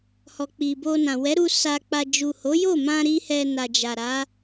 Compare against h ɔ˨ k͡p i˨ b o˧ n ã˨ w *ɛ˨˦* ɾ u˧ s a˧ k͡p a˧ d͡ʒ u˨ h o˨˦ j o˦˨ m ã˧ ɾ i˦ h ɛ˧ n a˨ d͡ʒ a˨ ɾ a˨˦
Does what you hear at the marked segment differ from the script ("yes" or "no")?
no